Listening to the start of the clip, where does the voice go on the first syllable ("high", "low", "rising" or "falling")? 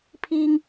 high